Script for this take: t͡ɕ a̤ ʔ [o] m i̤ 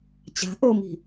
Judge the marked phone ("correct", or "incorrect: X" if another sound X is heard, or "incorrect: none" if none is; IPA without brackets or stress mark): correct